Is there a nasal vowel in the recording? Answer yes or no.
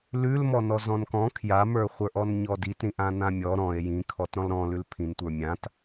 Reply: yes